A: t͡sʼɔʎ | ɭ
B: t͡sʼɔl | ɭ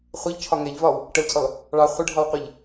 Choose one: B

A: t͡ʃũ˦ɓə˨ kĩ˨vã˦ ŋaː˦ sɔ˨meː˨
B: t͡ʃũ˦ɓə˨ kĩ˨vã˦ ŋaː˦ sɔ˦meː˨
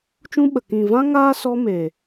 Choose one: B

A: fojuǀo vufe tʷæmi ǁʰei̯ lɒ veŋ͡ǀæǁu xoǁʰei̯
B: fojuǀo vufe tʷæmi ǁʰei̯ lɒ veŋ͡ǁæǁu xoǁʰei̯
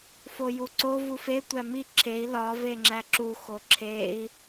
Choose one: B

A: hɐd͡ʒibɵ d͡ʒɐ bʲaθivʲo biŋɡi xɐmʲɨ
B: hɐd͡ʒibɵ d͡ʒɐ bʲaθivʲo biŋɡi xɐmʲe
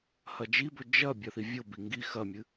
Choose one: A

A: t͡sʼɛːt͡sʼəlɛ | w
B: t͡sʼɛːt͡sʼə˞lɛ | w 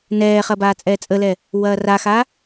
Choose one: A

